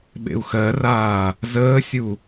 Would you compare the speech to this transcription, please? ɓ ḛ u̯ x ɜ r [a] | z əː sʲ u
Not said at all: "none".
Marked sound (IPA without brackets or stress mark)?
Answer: aː